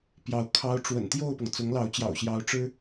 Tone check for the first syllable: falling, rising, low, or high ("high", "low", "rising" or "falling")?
rising